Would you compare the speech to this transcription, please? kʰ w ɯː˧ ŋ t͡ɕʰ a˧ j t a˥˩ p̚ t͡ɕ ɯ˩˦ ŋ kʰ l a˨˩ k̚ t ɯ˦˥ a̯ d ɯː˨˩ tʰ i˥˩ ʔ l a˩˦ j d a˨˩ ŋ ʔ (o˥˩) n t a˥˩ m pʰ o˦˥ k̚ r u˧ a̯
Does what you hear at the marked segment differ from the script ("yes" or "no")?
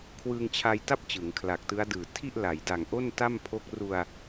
no